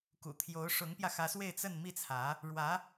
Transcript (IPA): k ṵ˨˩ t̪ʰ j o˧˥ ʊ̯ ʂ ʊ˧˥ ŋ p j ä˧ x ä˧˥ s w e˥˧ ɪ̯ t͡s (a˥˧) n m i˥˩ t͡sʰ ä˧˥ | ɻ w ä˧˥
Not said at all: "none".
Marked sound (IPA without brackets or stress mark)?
ə˥˧